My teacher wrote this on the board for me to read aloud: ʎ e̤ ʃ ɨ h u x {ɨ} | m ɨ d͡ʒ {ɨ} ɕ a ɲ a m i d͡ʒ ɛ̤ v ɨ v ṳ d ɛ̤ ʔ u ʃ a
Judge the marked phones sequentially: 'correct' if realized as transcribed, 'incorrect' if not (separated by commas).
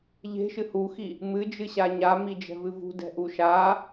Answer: incorrect, correct